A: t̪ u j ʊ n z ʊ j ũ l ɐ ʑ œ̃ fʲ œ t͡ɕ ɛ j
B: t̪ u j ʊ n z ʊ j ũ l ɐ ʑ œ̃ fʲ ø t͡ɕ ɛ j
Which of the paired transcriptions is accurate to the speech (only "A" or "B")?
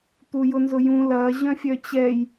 A